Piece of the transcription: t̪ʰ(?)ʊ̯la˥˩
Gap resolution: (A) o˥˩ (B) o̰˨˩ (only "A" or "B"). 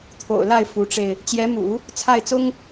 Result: B